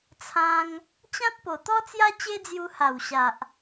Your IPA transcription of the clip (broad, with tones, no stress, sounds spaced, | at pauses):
t͡sʰ ã˦ ŋ | t͡ɕ ã˦ t̚ p o˨˩ t̪ ɔ˦ t͡s j a˦ t͡ɕ e˦ d͡z j u˧ h a˨˩ w ɕ a˨ ʔ